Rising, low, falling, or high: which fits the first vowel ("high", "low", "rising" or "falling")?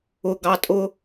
low